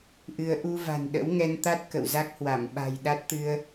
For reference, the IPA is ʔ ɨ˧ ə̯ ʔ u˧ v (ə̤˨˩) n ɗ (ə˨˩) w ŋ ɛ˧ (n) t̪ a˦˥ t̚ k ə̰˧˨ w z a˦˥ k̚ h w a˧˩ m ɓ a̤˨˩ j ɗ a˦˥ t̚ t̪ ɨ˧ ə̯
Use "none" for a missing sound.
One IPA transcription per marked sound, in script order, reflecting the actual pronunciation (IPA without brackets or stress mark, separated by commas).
a̤˨˩, ə̰˧˥, n